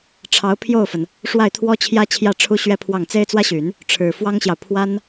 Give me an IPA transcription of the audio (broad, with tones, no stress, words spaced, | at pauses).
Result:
ʈ͡ʂʰɑ˧˥ʊ̯pʰjo˥˩ʊ̯fə˩n | ʂwa˥˩ɪ̯t̪ʰwɔ˥t͡ɕʰjä˥ t͡ɕʰjä˥˩ʈ͡ʂʰu˥ɕɥɛ˥pʰwɑ˥˩ŋ t͡se˥ɪ̯t͡swä˥ɕy˨˩˦n | ʈ͡ʂʰɻ̩˨˩fwɑ˥ŋɕjɑ˨ʊ̯ pʰwa˥n